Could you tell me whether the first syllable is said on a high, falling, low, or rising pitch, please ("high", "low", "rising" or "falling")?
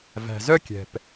low